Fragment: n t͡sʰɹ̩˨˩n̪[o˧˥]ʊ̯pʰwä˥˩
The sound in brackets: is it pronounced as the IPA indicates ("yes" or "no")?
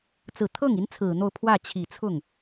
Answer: no